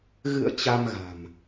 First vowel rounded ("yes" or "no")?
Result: no